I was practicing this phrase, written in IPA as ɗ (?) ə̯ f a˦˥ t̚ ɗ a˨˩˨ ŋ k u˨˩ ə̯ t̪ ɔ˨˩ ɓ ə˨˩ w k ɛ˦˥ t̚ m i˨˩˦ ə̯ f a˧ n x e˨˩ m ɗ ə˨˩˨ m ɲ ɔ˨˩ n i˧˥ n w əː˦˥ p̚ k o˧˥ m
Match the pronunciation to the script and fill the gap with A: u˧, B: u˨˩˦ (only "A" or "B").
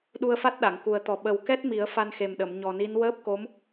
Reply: A